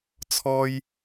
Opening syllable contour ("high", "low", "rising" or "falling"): high